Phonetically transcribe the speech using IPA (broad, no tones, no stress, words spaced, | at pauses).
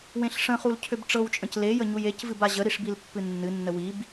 wẽɬʂə̃χul cʰøbʈ͡ʂɤwt͡ʃʼə̃c lejə ɲujecvɨb aʑəɾiʂ bilpːɨnːɨnːə wib